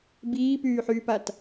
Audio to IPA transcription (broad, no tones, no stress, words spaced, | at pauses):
biːpyːħyːpat